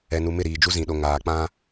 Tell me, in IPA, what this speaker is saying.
ɛ˨ n u˨ m ɪ˦˨ ɾ iː˨ d͡ʒ u˦ z ĩ˨ ɗ o˨ ŋ aː˨ k͡p ã˦

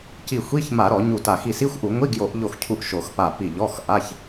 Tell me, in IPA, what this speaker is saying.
c i˧˩ xʷ i˧˥˧ ç m a˧˩˧ ɾ ɔ˧˩˧ ɲ u˧˩ t a˧˩ x i˧˩ s i˧˥˧ xʷ ʔ u˧˩˧ ŋʷ i˧˥˧ ɡ j o˧˩˧ ʔ ʎ o˧˩ x cʰ u˧˩ ʔ ʃ o˧˩˧ x p a˧˩ p i˧˩ ʎ ɔ˧˥˧ x ʔ a˧˥˧ ç

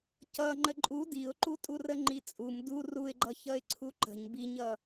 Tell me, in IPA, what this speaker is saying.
c ʌ ŋ͡ǃ ə ǃʼ u d i ʊ̯ ǃ u tʼ u r ə ŋ͡ǃ i t͡sʼ u m d u r u ɪ̯ ɡ͡ǃ ʌ ç ʌ ɪ̯ ǀʰ u ǃ ə̤ ɲ b i ɲ ʌ

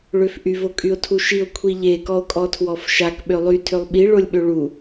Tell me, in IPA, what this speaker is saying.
ɭ ø f ʔ y v o kʼ y o̯ tʰ u ʃ i o̯ kʷʰ i ʎ e k ɔ o̯ kʼ ɔ tʰ w ɔ f ʃ a k ɓ ø lˠ y tʰ ø lˠ ɓ i ɭ o lʲ ɓ ø ɭ u

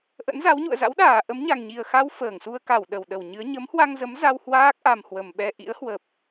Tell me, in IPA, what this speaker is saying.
ʔ ə̰˧˥ n z a˨˦ w ɲ ṵ˧˨ ə̯ z a̰˧˥ w ɗ aː˧˩ ʔ ə˨˦ m ɲ a˨˩ ŋ ɲ i˨˩ ə̯ x a˧ w f əː˧˩ ŋ s u˧ ə̯ k a˧˩ w ɗ ə˧˩ w ɗ ə˧˩ w ɲ ɨ˨˦ ə̯ ɲ ə˨˦ m h w a˧ ŋ z ə˨˦ m z a˧ w h w aː˦˥ k̚ ʔ a˨˩ m h w ə˨˩ m ɓ ɛ˧ ʔ ḭ˧˥ ə̯ h w ə˨˩ p̚

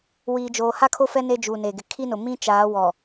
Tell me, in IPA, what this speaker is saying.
w iː˨ d͡ʒ oː˨ h a˦ kʰ o˦ f ɛ˦ n e˦ d͡ʒ uː˨ n e˨ ɡ ɪ˨ kʰ i˦ n ʊ˨ m ĩ˦ t͡ʃ aː˨˦ w ɔ˨

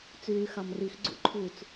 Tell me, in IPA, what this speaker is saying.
t͡s yː x ɑ m r i x ɡ͡ǀ ṵ ǃʰ u t͡s

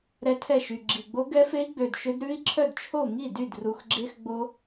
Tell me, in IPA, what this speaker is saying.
ɾ ɛ˦˥ tʰ ɛ˥˩ ʃ y˨˩ ɡ͡ǁ i˨˩ ɡ͡b o˦˥ ɡ ɛ˦˥ f e˦˥ i̯ ɡ͡b ø˨˩ d ʃ ø˦˥ d ɾ ʉ˦˥ i̯ ǁʰ œ˥˩ d t͡ʃʰ o˥˩ ŋ i˥˩ d y˥˩ d r u˨˩ x ɡ͡ǁ e˦˥ x ɡ͡b o˦˥

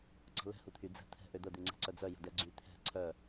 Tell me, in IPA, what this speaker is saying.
ǀ ə̤ l ɛ̤ h u t̪ʰ y d͡z ɛ̤ t̪ʰ ɛ̤ ʔ ø d̪ ə d̪ ʉ ŋ͡ǀ ɛ̤ ǀ œ d͡z œ j ə̤ d ɛ ɡ͡ǀ y t̪ʰ ɛ̤ ǀʰ œ

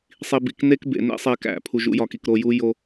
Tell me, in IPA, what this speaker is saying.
sˤ i˨ b ḭ˨ k n e˦ k b ḛ˨ n ḛ˦ sˤ e˨ k æ̰˨ pʰ u˨ ʒ ṵ˨˦ j ɒ˨ k i˨ k ɾ o˨ j u˦ j o˦

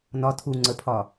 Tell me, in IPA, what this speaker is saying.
n ɒ tʰ u ŋ͡ǀ ə pʰ ɒ

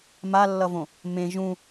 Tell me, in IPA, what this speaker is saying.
m a lː ʌ v õ | m ẽ ʒ ũ

